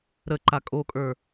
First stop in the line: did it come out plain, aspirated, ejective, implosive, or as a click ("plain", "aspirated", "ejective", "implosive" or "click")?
click